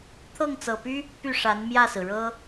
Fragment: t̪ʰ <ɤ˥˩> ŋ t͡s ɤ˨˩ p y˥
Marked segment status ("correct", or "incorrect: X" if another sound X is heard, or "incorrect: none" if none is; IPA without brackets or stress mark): correct